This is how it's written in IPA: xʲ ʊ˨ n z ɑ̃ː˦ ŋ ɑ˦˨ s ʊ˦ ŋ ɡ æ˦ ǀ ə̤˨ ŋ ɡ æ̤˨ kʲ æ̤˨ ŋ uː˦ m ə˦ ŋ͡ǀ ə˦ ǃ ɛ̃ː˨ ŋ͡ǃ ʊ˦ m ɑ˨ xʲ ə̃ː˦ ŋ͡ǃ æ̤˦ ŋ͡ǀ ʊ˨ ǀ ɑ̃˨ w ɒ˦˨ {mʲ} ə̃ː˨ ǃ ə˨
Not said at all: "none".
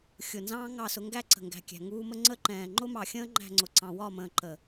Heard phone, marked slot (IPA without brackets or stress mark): m